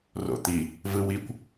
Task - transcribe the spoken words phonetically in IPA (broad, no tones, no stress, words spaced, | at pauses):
ro̰t̪i | vɯwikʷ